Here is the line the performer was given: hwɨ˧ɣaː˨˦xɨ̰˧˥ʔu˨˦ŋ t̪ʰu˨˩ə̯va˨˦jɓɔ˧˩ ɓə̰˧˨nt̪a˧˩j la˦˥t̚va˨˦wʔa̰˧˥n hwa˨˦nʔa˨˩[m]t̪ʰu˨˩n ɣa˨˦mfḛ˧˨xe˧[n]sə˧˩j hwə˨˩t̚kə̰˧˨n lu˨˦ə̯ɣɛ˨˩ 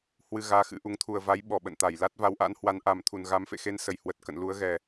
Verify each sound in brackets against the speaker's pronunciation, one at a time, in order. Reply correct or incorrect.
correct, correct

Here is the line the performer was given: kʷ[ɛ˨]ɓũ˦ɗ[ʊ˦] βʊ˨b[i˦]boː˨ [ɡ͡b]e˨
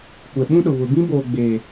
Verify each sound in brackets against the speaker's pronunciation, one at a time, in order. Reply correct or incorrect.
correct, incorrect: ʊ˨, incorrect: ĩ˦, correct

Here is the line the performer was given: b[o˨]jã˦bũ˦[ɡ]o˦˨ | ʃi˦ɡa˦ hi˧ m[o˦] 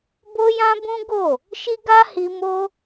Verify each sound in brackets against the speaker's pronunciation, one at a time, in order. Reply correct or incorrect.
incorrect: o˦, correct, correct

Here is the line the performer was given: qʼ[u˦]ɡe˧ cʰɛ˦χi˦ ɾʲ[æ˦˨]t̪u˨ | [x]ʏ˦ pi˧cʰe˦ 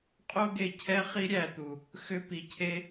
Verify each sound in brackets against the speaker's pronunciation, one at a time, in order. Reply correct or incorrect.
incorrect: o˦, correct, correct

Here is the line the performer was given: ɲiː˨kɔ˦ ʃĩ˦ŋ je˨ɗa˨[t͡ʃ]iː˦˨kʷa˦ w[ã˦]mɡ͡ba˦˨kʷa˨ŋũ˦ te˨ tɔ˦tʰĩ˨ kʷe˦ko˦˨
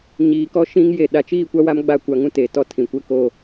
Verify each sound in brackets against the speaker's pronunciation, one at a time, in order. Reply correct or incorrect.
correct, incorrect: a˦

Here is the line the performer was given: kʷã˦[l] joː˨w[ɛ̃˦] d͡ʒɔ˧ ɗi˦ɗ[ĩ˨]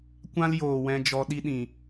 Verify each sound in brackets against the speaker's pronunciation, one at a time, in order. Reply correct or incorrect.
correct, incorrect: ɛ̃˧, correct

